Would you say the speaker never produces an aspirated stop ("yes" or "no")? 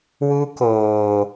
yes